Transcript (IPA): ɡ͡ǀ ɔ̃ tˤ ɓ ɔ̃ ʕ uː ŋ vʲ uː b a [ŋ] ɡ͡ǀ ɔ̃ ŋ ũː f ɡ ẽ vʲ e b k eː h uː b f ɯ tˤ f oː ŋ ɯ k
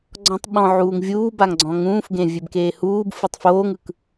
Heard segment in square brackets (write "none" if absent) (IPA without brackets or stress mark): ŋ